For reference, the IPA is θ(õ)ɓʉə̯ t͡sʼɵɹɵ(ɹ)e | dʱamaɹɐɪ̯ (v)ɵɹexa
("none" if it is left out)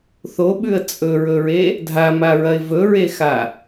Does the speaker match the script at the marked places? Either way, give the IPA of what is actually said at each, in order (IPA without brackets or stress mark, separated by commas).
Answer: o, ɹ, v